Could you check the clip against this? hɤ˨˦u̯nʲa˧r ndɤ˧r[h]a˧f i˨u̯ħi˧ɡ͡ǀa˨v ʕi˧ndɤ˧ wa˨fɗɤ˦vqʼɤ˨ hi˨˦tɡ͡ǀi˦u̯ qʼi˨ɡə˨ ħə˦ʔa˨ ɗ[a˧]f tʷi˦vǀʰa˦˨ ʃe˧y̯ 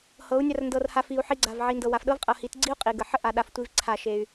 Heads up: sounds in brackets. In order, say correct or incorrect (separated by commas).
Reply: correct, correct